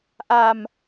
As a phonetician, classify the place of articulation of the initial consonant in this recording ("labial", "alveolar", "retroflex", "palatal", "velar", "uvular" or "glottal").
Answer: glottal